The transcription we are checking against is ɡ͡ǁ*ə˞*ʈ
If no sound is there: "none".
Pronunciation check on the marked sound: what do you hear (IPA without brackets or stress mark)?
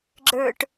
ə˞